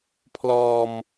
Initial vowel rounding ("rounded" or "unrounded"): rounded